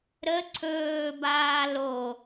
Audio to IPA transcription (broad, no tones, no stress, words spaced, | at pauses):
ɾə ǀʰɵːbaː lo